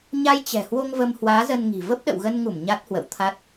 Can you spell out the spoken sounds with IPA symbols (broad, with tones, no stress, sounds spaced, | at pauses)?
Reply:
ɲ a˧ j t͡ɕ ɛ̤˨˩ h w o˧ ŋ v ə˧ m h w aː˨˦ z ə˧ n ŋ i̤˨˩ v ə˦˥ p̚ ɗ ə̰˧˨ w ɣ ə˧ n ŋ u˧˩ m ɲ a˦˥ t̚ h w ə̰˧˨ w t̪ʰ a˦˥ t̚